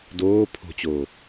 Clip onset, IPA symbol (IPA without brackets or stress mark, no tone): d